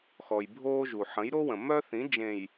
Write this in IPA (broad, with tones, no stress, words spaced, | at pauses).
xɔ˨jbʱoː˦ʒu˨ ħə̃˨˦jɾo˦ wə̃˨ mœ˦θĩ˨˦d͡ʒẽ˨j